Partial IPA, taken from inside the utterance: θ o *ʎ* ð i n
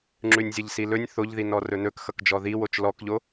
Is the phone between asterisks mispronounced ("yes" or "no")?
no